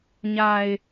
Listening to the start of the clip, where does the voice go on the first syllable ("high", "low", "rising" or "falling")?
low